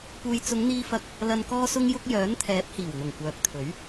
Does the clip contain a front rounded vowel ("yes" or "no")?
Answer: yes